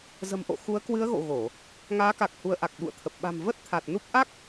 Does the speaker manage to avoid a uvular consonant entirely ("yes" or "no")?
yes